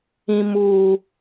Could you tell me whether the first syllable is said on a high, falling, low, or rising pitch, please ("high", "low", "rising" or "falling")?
high